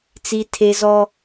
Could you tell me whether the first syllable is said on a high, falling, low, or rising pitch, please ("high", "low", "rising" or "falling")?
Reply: high